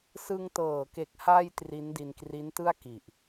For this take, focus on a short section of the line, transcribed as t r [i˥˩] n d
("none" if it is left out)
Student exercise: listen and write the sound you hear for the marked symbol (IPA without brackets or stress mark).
i˦˥